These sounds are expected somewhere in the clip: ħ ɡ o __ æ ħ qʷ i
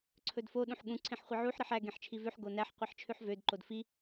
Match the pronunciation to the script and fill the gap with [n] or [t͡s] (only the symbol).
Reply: n